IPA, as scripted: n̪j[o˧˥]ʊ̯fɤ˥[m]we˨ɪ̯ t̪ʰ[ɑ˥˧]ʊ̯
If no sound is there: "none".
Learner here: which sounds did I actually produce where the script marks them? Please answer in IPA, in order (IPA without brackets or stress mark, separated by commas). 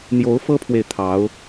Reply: o˧˥, pʰ, ɑ˧˥